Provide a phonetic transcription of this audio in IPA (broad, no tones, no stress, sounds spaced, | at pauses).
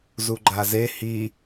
z u ɡ͡ǃ a z e h i